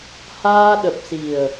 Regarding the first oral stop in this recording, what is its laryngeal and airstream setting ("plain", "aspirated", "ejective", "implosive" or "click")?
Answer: implosive